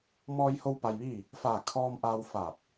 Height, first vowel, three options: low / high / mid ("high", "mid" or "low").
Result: mid